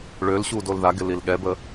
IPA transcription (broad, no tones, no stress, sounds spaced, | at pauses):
ɭ ø l ɕ u d o l ð a ɡ ɪ l i l ɠ ɛ b ə